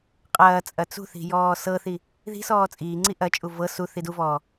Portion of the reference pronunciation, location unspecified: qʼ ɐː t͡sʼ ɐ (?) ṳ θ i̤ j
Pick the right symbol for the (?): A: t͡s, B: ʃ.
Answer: A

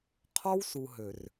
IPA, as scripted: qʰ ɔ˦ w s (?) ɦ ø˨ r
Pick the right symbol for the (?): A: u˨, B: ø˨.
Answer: A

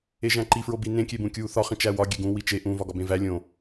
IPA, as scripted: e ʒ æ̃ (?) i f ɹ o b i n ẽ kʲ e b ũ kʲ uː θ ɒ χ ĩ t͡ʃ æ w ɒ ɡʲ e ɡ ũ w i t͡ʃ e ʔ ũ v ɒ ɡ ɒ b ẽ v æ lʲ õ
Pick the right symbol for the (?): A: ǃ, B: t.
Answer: A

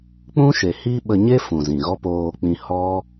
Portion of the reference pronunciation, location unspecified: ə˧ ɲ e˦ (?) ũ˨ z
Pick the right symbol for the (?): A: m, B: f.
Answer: B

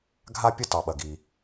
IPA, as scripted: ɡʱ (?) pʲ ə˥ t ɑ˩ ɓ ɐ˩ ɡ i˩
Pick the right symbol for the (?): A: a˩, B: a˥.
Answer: B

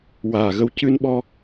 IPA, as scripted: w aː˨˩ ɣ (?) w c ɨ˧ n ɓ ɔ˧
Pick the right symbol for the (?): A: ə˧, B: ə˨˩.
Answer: A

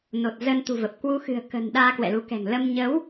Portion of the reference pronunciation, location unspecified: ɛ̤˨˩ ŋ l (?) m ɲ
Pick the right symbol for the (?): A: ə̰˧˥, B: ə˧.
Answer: B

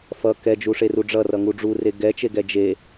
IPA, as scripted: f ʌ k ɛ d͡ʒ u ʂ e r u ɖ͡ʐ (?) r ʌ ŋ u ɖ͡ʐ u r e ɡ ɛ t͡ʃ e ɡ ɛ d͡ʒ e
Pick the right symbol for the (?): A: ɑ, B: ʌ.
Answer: B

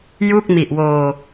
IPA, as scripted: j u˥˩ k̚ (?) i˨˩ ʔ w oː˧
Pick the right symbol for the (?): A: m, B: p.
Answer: A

